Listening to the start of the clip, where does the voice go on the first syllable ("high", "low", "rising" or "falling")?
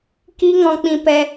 high